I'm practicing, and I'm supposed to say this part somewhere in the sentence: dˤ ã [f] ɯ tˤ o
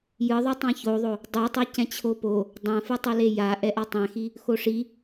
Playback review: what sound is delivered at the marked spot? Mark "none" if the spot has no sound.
f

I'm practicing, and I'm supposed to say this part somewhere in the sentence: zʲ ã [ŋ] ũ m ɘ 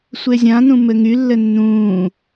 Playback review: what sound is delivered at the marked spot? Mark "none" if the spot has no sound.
n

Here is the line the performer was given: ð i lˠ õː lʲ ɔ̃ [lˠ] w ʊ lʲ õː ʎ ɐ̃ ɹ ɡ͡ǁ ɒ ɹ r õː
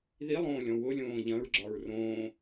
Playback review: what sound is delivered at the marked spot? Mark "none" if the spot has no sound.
none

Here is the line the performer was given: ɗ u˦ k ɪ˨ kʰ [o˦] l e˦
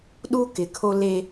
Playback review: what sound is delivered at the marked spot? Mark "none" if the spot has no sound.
o˦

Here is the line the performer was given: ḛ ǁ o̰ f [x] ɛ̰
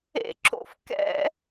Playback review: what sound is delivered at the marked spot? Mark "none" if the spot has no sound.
k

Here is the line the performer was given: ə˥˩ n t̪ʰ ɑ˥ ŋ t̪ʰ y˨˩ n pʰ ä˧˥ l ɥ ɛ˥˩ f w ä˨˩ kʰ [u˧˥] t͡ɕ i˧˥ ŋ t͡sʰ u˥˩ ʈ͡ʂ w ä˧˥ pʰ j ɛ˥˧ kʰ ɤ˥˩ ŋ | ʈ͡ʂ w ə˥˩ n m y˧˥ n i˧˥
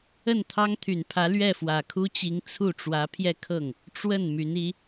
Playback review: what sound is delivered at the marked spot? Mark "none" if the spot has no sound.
u˥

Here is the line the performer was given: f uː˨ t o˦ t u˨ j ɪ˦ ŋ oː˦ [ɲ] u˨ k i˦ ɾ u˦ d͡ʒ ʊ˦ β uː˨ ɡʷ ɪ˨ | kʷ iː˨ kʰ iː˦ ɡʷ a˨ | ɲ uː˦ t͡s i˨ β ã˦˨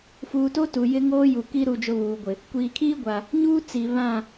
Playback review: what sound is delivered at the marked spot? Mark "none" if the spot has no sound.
j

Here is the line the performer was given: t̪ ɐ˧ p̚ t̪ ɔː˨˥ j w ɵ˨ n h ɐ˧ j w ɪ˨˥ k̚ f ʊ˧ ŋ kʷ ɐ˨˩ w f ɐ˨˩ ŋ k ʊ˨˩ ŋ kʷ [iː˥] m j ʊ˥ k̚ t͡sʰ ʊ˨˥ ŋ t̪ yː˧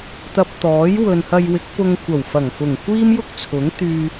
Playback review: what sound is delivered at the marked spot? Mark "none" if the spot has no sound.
iː˥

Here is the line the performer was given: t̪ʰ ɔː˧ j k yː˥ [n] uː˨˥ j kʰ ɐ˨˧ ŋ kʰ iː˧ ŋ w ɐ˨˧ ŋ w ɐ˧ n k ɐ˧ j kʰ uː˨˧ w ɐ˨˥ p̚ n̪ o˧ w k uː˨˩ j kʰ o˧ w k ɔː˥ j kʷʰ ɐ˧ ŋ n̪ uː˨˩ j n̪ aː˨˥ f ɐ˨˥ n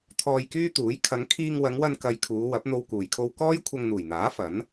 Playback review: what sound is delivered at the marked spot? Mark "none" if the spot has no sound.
t̪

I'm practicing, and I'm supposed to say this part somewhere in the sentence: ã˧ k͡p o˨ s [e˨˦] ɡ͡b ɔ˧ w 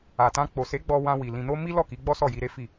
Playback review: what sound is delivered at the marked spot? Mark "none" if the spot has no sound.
e˨˦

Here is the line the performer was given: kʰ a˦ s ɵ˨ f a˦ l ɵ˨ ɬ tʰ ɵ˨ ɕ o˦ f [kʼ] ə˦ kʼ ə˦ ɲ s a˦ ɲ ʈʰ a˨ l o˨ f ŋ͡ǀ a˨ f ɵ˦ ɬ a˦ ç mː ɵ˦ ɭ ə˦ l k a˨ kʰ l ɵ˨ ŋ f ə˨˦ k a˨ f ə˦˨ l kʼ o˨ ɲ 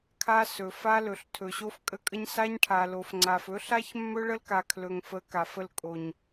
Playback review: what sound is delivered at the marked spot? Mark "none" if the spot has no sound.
kʼ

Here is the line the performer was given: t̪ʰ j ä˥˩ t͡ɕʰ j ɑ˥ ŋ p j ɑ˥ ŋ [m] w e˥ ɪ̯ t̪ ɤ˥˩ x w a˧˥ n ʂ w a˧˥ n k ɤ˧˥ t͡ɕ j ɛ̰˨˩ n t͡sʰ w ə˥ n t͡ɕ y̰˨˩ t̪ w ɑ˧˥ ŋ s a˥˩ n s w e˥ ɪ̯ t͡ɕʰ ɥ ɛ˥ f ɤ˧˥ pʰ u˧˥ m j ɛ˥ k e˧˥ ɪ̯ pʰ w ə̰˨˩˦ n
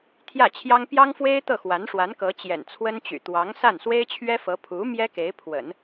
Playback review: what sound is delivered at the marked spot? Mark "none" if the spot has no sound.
f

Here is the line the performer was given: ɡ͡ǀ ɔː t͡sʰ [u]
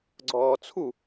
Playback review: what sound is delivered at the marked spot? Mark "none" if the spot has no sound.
u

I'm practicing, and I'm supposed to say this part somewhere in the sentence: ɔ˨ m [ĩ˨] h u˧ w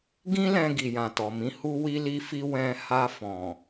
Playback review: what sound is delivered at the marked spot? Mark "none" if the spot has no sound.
ĩ˨˦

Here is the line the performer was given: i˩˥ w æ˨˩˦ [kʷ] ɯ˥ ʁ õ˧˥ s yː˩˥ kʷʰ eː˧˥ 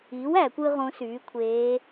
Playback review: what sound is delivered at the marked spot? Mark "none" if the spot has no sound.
kʷ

